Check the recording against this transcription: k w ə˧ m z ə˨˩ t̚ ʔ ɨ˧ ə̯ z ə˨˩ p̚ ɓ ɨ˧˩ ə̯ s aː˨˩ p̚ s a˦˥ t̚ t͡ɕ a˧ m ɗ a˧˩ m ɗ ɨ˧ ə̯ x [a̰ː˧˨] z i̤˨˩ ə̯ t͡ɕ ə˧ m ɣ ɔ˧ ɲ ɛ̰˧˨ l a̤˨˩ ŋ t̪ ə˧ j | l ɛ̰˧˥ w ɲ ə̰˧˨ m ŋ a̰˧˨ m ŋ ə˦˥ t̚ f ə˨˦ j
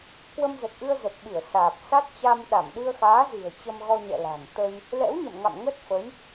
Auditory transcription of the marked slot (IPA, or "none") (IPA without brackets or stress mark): aː˨˦